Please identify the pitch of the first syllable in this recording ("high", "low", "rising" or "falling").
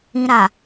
low